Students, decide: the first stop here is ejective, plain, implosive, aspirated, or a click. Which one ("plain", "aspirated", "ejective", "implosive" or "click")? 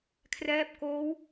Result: aspirated